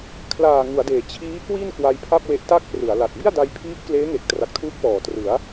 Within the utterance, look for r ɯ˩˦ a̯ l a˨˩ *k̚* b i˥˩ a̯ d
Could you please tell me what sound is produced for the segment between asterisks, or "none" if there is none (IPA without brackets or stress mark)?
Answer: t̚